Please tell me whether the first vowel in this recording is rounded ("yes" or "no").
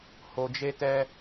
yes